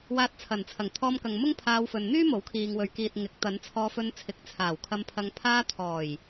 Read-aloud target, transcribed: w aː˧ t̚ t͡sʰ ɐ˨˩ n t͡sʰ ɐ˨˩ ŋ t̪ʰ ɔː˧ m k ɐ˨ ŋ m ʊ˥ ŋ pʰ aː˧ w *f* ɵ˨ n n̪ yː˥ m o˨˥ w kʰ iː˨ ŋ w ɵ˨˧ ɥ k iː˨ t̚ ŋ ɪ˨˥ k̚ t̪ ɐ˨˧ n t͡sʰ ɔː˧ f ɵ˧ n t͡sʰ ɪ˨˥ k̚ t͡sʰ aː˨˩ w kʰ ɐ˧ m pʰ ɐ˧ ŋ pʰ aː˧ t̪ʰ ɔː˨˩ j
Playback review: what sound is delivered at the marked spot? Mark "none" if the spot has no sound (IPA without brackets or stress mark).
f